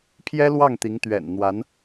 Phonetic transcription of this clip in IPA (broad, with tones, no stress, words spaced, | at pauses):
pʰjɛ˥lwɑ˥˩ŋt̪i˧˥ŋ t̪ɥɛ̰˨˩n n̪wa˧˥n